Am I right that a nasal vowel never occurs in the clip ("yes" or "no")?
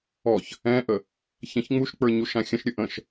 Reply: no